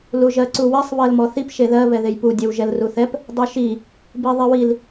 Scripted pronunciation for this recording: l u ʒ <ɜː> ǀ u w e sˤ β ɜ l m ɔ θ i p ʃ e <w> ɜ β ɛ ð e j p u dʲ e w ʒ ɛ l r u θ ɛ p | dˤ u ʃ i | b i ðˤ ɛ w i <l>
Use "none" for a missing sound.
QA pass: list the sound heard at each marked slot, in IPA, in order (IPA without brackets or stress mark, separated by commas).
ɜ, ð, l